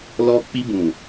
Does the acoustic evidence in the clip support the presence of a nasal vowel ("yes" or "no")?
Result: yes